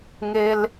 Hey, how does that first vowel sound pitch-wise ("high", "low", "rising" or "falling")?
high